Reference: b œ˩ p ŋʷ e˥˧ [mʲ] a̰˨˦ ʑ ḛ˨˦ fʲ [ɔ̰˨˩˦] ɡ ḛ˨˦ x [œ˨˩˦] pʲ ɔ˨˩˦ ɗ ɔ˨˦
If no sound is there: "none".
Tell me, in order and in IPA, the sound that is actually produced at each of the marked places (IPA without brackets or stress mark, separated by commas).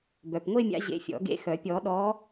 mʲ, ɔ̰˨˩˦, œ˨˩˦